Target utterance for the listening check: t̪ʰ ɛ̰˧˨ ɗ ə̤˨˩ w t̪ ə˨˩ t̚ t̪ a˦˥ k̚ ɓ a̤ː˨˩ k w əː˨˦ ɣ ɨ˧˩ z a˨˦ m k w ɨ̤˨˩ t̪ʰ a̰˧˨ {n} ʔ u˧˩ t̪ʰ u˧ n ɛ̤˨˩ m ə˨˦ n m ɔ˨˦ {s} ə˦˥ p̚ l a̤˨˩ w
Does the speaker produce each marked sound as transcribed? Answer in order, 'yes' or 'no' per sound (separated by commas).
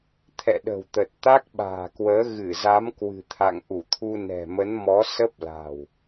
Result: no, yes